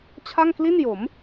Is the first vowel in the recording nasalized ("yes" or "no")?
no